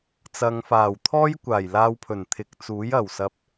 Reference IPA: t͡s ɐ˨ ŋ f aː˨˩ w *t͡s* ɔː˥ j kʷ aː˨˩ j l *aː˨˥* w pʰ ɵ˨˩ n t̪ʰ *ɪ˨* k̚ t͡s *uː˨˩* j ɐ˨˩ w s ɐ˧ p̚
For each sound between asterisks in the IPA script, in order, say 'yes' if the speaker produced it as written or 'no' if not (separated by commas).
no, no, yes, no